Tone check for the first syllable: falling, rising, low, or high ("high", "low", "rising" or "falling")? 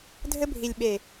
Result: high